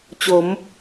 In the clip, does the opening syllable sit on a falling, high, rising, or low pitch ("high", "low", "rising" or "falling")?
rising